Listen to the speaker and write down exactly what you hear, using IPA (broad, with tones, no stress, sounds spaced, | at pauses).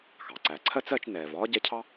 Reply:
x ɑ˩ ǀ æ˨ ǀʰ ɜ˥ t͡s ɜ˦ t͡ʃ n ɛː˨ v ɒː˥ ɟ ɛ˦ cʰ ɑ˥